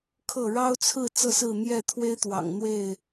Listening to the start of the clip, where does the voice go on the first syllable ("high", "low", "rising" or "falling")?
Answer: falling